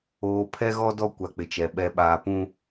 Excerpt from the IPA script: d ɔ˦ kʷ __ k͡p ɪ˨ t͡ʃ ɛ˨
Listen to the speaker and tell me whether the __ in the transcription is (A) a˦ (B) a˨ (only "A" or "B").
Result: B